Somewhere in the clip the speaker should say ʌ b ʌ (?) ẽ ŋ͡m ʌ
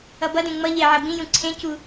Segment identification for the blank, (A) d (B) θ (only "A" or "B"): A